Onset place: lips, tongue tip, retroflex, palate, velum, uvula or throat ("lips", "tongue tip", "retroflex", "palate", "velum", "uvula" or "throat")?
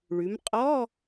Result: retroflex